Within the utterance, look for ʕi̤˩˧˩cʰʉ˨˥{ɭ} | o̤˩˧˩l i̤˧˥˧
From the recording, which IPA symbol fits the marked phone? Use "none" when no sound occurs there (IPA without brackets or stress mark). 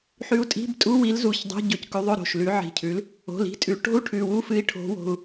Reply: l